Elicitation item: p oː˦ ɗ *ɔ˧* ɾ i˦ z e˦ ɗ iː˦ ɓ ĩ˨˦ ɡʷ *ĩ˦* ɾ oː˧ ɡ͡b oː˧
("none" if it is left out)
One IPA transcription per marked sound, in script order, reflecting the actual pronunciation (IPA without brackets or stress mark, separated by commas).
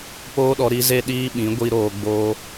ɔ˧, i˦